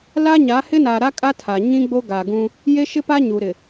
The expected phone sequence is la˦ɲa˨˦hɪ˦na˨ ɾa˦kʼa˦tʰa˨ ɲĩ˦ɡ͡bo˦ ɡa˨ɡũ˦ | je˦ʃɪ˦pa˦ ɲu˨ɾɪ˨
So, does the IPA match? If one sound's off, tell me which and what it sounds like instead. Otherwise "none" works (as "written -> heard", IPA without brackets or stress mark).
none